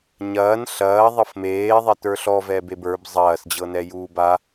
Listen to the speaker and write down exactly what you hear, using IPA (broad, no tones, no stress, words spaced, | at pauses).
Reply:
ɲɐːn ɬɐːðˤɤf meːðˤɛtə˞ ɬɔvɛbeb ə˞b zˤɐːsd͡ʑɤnɛjuːb a